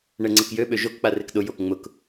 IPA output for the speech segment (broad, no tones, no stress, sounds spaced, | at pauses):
ɳ ɛ ŋ͡ǀ ɤ k j ø ɓ ø ʒ o k k͡p a r e k ɗ ʊ j o k ŋ͡m ʊ k